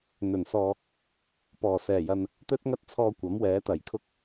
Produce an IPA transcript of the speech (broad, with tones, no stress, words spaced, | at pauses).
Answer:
n̪ɵ˨˩n sɔː˨ | pɔː˨˩sɛː˨˩jɐ˨n | t̪ɵ˥t̚ŋɐ˥t̚t͡sʰɔː˧ kʷɐ˨˥mwɛː˨˥t̪ɐ˨˩jkʰʊ˥k̚